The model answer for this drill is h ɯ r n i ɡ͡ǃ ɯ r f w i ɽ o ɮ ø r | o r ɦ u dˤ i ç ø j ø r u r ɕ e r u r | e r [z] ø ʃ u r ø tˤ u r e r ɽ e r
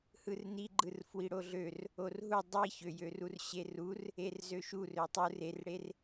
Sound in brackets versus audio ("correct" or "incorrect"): correct